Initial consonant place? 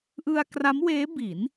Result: glottal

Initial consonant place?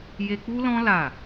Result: palatal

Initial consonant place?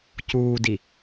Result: palatal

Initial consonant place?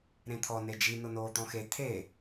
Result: alveolar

